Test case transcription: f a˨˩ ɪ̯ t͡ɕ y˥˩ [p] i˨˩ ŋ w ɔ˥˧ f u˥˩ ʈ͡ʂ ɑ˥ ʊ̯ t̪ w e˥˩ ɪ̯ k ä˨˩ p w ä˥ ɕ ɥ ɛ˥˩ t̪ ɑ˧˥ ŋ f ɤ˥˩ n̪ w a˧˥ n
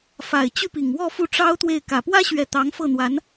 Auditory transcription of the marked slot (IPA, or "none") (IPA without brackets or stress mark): p